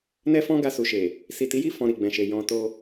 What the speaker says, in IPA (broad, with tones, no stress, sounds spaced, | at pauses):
n ɛ˦ f ɔ̃˦ ɡ a˧ s u˨ ʃ e˨ | s i˨ t i˨˦ j i˦˨ f ɔ̃˨ ɾ i˨ ɡ͡b ɛ̃˨ ʃ e˨ j ɔ̃˨ t o˧